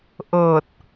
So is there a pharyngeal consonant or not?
no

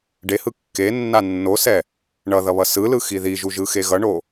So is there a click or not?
no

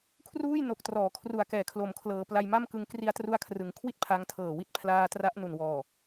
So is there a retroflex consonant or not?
no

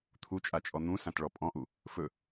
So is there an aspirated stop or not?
yes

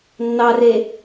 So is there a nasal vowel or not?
no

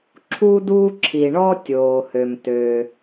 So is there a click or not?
yes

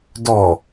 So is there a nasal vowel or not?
no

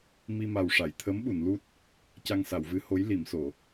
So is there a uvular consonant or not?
no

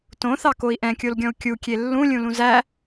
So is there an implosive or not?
no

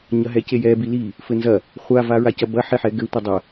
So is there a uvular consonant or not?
yes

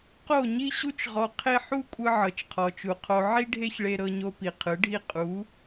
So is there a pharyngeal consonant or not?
yes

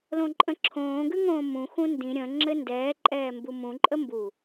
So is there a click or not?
yes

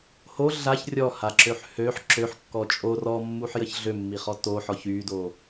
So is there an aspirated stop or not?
no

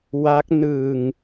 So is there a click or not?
no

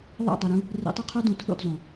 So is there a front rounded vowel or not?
yes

